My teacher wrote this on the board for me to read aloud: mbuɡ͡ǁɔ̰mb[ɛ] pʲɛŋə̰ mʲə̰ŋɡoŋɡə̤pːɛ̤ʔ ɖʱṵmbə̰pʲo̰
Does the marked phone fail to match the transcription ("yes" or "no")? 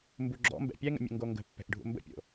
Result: yes